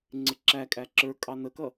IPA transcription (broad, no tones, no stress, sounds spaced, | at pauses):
ŋ͡ǀ ɪ ǁ æ kʼ æ ǁ ə˞ kʼ ɑ n ə k ʌ